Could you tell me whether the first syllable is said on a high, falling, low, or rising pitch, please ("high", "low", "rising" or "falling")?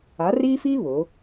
rising